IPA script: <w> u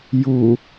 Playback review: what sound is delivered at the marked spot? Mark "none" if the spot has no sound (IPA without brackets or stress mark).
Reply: j